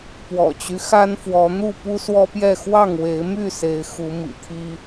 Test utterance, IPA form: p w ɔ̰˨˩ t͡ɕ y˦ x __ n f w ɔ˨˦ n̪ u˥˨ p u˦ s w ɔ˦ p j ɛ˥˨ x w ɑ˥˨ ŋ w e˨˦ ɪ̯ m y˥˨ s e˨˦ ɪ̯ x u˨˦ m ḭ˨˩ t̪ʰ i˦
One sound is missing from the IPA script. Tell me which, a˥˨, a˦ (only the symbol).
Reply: a˦